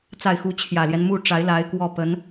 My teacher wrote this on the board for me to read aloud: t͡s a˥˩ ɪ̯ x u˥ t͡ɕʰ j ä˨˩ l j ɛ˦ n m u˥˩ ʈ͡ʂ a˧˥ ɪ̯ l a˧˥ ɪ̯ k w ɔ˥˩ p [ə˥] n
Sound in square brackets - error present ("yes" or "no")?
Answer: yes